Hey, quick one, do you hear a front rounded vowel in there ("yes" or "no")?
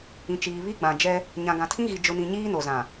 no